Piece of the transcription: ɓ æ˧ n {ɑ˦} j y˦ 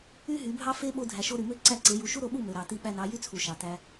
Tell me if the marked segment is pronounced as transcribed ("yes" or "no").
no